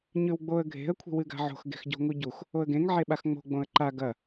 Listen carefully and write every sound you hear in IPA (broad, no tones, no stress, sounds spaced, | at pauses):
ɲ ʉ w ɡ͡b o ə̯ ɡʱ e̤ ə̯ kʷʰ i̤ w ɨ ɡ a̤ ʕ o̤ x ɡ e̤ x ɟ o̤ ŋ u ɟ u x | o ə̯ ɡ ẽ ŋ ʕ e ɓ a x ŋ͡m o̤ ɡ͡b õ ə̯ ǃ a ɡ ɐ